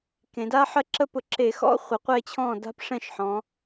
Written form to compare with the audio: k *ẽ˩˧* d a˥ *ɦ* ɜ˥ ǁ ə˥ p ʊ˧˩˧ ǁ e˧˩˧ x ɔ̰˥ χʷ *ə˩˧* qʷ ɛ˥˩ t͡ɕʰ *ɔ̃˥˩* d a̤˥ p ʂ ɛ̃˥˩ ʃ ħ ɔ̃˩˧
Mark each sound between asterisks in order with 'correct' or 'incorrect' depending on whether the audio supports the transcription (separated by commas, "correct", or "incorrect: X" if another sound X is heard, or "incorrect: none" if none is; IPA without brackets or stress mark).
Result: correct, incorrect: ħ, correct, correct